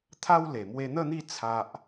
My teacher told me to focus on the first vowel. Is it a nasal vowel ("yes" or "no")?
no